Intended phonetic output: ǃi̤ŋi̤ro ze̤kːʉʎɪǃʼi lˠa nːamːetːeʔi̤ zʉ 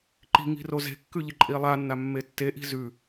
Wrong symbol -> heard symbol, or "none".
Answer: none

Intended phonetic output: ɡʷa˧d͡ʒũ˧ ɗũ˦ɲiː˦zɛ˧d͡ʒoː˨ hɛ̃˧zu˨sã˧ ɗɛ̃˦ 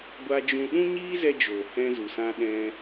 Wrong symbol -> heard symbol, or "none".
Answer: none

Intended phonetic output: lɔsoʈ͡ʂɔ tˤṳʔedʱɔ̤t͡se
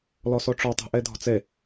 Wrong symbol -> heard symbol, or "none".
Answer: none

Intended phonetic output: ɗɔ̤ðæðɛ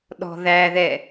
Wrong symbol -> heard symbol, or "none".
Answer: none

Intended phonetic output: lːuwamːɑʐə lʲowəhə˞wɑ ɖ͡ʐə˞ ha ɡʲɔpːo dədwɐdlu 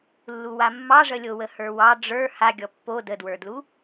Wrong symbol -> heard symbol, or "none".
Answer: ɐ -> ə˞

